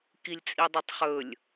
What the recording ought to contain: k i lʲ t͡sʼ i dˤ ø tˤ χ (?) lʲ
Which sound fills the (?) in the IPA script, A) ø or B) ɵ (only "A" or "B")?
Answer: B